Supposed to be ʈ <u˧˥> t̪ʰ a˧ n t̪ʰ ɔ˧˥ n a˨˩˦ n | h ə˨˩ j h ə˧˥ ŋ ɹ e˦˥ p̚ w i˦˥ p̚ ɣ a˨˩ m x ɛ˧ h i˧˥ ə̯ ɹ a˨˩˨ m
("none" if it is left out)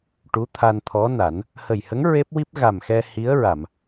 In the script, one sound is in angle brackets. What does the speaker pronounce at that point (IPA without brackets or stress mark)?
u˧˥